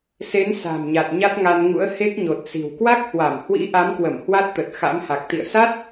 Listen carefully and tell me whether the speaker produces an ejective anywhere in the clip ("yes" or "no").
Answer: no